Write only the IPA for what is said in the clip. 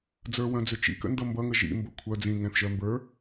d͡z ə˞ w œ̃ d͡z ʏ t͡ʃ ḭ k ə̰ n d ʌ m b ʌ ŋ ə ʒ ḭ m b ə kʷʰ œ d͡z ĩ ŋ ɛ̃ θ ʒ œ m b ə˞

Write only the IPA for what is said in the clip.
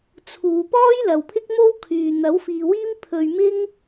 t͡sʰ uː˨ p ɔː˥ j l ɐ˨ w pʰ ɪ˥ k̚ m o˥ w kʰ yː˨ n̪ ɐ˨˥ w f iː˨ w iː˥ m pʰ ɵ˧ ɥ m ɪ˥ ŋ

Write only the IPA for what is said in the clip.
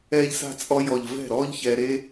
ɛː˦ ʎ s a̤˦ t͡sʼ ɔ˦ j ɔ˨ ʎ v ɛ̤˦˨ ɾ ɔː˦ ʎ ç ɛː˧ ɾ e˦

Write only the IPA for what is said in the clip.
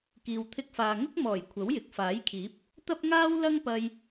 k iː˨ w t̪ʰ ɪ˧ k̚ f aː˨ ŋ ʊ˥ k̚ m ɔː˨˩ j kʷʰ ɐ˨˥ w j ɪ˨ k̚ f aː˨˥ j kʰ iː˨˥ p̚ | t̪ ɐ˥ p̚ ŋ aː˥ w l ɐ˥ ŋ p ɐ˧ j

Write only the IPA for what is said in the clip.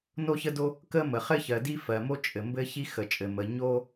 n o˥ ç ə˥ d o˥ | k ə˥ m ə˩ χ ɘ˥ ç ɜ˩ d i˥ f ɜ˩ m o˥ t͡ʃʼ ɘ˩ m b ɘ˥ ç i˥ x ə˩ t͡ʃʼ ɘ˩ m ə˩ ɲ o˥

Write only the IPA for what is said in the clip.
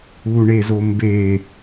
u ɳ e z o m b e

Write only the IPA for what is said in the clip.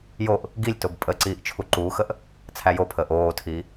j o ʔ | ɡ i lʲ t o b pʼ ə ǀ iː ʔ t͡ʃʰ u ǃ uː x ə ʔ | t͡sʰ æ j o pʰ əː ʔ oː tʰ i

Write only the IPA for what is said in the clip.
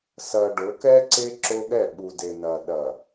s ɐ˨ ɖ ʊ˨˦ k ɛ˦ ǀ e˦ ǁ o˦ ɠ ɛ˦˨ ɓ u˨ d e˨ n ɐ˨ ɗ ɐ˨

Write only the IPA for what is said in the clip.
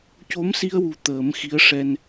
c o˧˥ m s i˧ ə̯ w u˨˩ t̪ əː˨˩˦ m x i˧˥ ə̯ ʂ ɛ˧ n

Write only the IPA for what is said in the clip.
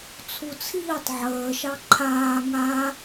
t͡sʰ u t͡sʰ iː tˤ ʕ əː ʃ ɑ ǃʰ aː ŋ a

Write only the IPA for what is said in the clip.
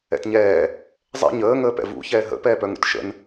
ɛ̰ t ɲ ɛː | zˤ ɛ̰ ɲ əː ŋ əː p ɛ̰ v ṵ ç ɛː ɦ ə̰ p ɛː p œ ŋ ṵ t ʃ ə̰ n

